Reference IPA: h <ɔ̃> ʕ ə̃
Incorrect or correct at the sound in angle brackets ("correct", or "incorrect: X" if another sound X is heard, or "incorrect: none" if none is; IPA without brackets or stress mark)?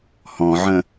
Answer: correct